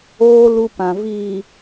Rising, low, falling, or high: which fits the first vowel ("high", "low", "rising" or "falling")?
high